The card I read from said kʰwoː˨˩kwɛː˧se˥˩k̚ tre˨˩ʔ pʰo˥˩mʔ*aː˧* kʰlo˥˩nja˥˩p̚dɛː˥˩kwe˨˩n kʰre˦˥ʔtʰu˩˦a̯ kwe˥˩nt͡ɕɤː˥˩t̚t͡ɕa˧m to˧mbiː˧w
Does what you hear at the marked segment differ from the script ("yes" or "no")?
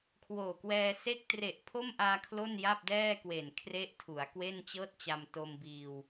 no